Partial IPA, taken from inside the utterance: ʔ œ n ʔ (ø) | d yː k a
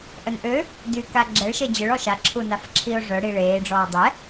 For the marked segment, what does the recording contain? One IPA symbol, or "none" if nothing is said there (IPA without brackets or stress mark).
ø